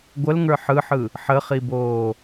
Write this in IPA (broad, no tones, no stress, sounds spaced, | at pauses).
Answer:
ɡʷ ə l ŋ ə˞ ħ ɯ ħ ɯ | ħ ə χ i b oː